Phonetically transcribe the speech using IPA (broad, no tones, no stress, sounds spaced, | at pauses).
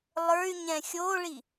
lˠ ə˞ y̯ ɲ ɛ̃ xʲ o ɭ i